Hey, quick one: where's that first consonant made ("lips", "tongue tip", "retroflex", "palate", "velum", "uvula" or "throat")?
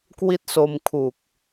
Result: velum